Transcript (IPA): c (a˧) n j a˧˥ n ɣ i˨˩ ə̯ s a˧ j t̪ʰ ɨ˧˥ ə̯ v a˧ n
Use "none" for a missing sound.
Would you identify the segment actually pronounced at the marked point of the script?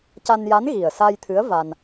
a˧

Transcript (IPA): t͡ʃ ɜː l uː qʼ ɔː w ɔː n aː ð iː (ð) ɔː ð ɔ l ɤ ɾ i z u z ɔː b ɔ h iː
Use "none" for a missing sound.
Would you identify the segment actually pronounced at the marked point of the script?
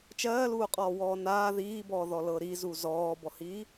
b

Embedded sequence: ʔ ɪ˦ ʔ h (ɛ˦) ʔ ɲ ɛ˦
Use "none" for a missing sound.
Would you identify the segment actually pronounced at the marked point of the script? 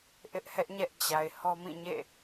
ɛ˦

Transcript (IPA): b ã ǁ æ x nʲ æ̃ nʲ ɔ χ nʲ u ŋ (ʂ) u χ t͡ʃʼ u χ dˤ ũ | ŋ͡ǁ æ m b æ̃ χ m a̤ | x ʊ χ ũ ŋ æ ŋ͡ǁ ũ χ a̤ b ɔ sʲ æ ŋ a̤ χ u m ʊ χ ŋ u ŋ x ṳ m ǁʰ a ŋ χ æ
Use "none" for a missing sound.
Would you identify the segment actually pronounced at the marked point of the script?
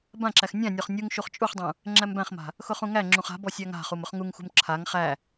ʃ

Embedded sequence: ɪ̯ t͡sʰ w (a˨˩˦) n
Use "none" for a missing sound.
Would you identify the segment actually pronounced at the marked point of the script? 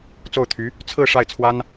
a˥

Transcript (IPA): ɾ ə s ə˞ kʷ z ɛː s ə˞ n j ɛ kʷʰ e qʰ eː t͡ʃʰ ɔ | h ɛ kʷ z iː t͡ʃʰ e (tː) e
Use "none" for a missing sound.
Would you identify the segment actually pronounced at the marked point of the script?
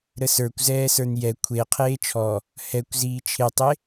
tˤ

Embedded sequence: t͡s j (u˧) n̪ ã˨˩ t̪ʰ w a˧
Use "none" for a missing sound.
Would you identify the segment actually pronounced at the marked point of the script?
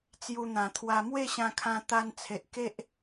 u˧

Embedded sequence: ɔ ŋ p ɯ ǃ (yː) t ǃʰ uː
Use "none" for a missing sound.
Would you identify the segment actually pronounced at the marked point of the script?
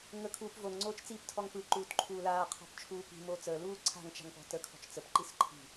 uː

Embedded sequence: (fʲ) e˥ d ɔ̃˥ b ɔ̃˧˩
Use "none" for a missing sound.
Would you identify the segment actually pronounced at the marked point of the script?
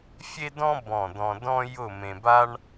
fʲ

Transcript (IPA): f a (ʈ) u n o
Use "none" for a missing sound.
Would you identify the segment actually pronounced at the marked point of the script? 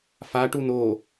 ʈ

